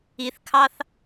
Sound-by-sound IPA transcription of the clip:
i θ kʰ ɑ θ

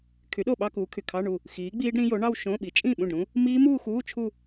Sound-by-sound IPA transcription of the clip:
kʰ y˨˥ ɗ o˥˩ ɓ ɑ˥˧ k uː˨˥ kʰ y˩ kʰ ɑ˧˥˧ ɳ u˥˩ | x iː˨˥ ɡ͡b iː˦˥ ɖ ɾ ĩ˦˥ j o˨˥ ɳ ɑ˥˧ w ʃ õ˧˥˧ ɓ i˨˥ t͡ʃʼ ĩ˥˩ ɓ ũ˥˩ ɖ ɾ ũ˦˥ | m iː˦˥ m uː˥˧ x uː˧˥˧ t͡ʃʰ u˥˧

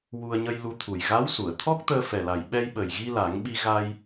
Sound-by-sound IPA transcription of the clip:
w u˧ ə̯ ɲ ə˧ j l u˧ t̪ʰ u˨˩ j ɣ a˧˥ w s u˨˩˨ ə̯ t̪ʰ ɔ˦˥ k̚ t̪ əː˧ f ɛ˨˩ l a˨˩ j ɓ ɛ˧ j ɓ ə˨˩ j ɣ i˧ l a˨˩˦ ŋ ɓ i˧ ɣ a˧ j

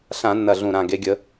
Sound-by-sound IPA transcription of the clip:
ɬ ã˧˩˧ nː ɐ˨˩ ɮ ũ˨˩ ɾ ã˨˩ ɡ e˩˧ ɡʲ ə˩˧

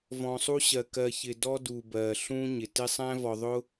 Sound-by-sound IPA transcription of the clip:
v ɔ̃˨ sˤ u˧ ɕ ɜ˨ k ɜ˨ ç ɪ˨ d ɔ˧ d u˨ b ɜ˨ ɬ ũ˧ ɲ ɪ˨ t ɪ˦ sˤ æ̃˦ v ɔ˧ ðˤ ʊ˦

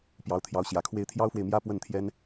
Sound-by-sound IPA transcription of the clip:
p j ɑ˧˥ ʊ̯ t̪ʰ j ɑ˧˥ ʊ̯ ɕ j ä˨˩ kʰ w e˥ ɪ̯ t̪ʰ j ɑ˥ ʊ̯ f w e˨ ɪ̯ m j ä˥ p w ə˥˩ n t̪ʰ j ɛ˥ n

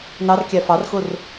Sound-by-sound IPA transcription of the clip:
n ɑ r kʲ æ f ɑ r x ʊ r

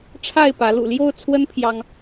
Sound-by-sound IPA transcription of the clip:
ʈ͡ʂʰ a˥˨ ɪ̯ p ä˨˦ l ṵ˨˩ l j o˥˨ ʊ̯ t͡sʰ w ə˦ n pʰ j ɑ˦ ŋ

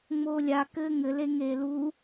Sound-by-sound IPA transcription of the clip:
ŋ͡m oː lʲ a k ɘː ŋ ɘ l e ŋ eː l u

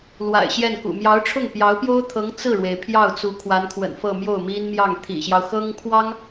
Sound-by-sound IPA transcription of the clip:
l w a̰˨˩ ɪ̯ ɕ j ɛ˥˩ n k ṵ˨˩ m j ɑ˧˥ ʊ̯ ʈ͡ʂʰ ʊ˥˩ ŋ p j ɑ˧˥ ʊ̯ p j o˥ ʊ̯ t̪ʰ ɤ˧˥ ŋ t͡s ɹ̩˥˩ ɻ w e˩ ɪ̯ pʰ j ɑ˥˩ ʊ̯ t͡s u˧˥ kʰ w a˧˥ n kʰ w ə̰˨˩ n f ɤ˥˧ m j o˥˩ ʊ̯ m i˥ n m j ɑ˥˩ ŋ t̪ʰ ḭ˨˩ ɕ j ɑ˦ ʊ̯ x ɤ˥ ŋ pʰ w ɑ˥ ŋ

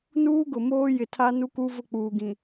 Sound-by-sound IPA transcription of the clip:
n uː˦ ɡ ʊ˨ m oː˦ j ɪ˨ tʰ a˦ n u˦ k u˦ v ʊ˦ k͡p uː˨ ɡ ĩ˨

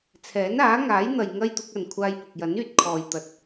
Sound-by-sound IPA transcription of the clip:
t͡sʰ ɛː˨˥ n aː˨˥ ŋ aː˨˥ j n̪ ɐ˨ j ŋ ɐ˥ j t̪ ʊ˨˥ k̚ ɐ˨ n kʷʰ aː˧ j p ʊ˨ k̚ j ɐ˨˥ n yː˧ t̚ kʰ ɔː˨ j t̪ ɐ˨˥ t̚

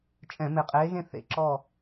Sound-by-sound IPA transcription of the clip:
t͡ʃʼ ɛ̃˧˩˧ m e˧˩ qʼ eː˧˥ ɣ ẽ˥˧ θ ḛ˧˩˧ ǁ ɔ˥˧

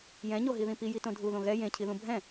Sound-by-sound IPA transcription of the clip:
j ɛ̃ ɲ o ɦ i ð ĩ p i j i t õ dʱ u ð õ ɣ ɛ j ẽ cʰ i ð ũ bʱ ɛ̃

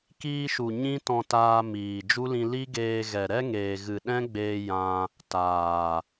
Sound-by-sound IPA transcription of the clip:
k iː˧ ʃ u˨ ɲ ĩ˦ t ɔ̃˧ t aː˧ m iː˨ d͡ʒ u˦ l ĩ˧ l i˦ ɡ eː˧ ɣ ɛ˨ ɾ ɛ˦ ŋ eː˨ ɣ ɨ˨ ɗ ɛ̃˦ ɡ͡b eː˧ j ã˧ | t aː˨

